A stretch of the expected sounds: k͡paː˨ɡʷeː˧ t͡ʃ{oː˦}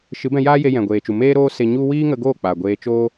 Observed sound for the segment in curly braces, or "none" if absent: oː˦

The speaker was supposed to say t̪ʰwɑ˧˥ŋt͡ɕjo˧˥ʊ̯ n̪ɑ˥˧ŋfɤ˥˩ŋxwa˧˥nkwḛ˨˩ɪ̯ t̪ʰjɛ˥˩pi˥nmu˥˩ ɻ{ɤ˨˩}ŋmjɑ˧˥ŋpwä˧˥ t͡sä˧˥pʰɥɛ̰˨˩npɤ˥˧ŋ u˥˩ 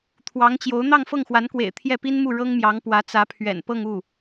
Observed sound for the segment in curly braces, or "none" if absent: ɤ˥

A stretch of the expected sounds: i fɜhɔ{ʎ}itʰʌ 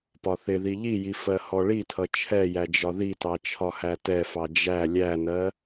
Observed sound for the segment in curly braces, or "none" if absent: ɭ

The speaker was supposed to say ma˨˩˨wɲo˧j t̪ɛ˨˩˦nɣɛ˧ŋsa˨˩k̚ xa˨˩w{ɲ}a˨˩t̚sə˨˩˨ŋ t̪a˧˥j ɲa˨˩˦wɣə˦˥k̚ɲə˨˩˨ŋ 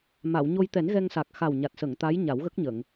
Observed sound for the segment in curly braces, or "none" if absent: ɲ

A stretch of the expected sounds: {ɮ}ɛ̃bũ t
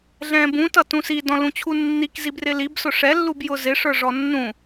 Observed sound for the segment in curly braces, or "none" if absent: ɮ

